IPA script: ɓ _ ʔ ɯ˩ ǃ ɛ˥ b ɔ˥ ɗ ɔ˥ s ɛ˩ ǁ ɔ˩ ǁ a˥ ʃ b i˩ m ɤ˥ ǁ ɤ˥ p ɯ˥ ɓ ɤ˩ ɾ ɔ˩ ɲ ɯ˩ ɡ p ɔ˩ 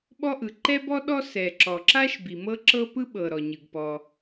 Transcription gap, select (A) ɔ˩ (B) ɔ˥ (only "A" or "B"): B